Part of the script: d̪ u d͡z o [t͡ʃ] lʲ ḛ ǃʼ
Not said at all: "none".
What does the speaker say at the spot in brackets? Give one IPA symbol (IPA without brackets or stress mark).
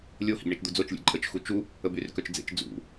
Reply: t͡ʃ